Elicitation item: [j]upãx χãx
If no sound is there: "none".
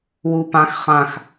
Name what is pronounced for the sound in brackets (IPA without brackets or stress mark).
w